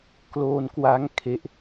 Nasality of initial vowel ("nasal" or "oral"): oral